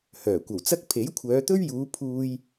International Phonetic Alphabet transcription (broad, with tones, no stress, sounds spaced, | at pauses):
h œː˨˩ kʷ ɐ˨˩ w t͡s ɐ˥ k̚ pʰ e˨˥ j kʷʰ œː˨˧ t̪ ɵ˥ ɥ j uː˨˧ pʰ uː˥ j